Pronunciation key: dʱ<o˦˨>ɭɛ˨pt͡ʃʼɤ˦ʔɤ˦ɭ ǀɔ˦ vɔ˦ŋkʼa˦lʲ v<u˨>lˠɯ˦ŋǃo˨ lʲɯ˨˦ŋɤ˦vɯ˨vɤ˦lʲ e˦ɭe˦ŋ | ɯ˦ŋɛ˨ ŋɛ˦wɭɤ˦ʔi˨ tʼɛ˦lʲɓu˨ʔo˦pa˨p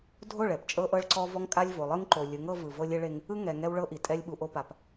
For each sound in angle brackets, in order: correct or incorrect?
correct, incorrect

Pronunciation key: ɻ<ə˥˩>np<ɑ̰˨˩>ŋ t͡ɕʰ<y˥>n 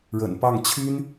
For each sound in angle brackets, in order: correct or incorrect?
incorrect, incorrect, correct

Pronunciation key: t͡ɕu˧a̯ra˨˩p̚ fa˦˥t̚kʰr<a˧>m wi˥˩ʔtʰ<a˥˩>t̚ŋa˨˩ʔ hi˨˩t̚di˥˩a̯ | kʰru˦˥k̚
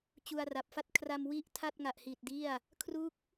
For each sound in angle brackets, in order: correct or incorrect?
correct, correct

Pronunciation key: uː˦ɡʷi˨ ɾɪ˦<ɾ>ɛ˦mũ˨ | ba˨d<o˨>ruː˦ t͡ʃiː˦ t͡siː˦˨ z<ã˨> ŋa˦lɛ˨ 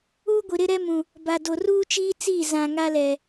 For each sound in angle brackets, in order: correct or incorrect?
correct, correct, correct

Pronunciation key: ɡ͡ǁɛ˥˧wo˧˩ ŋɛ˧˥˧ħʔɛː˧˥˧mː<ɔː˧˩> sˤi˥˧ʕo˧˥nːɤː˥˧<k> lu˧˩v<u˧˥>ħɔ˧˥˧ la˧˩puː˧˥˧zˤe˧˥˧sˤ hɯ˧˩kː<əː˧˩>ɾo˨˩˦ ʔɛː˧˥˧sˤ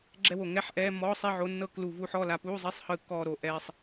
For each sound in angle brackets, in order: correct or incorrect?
incorrect, correct, correct, incorrect

